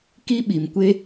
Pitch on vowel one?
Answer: high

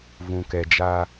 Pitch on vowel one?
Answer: low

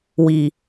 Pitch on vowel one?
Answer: low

